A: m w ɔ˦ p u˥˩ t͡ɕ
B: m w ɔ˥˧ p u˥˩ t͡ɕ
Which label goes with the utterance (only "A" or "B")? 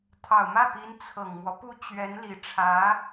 A